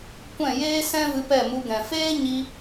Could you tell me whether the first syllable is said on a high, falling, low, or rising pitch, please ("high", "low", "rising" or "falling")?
falling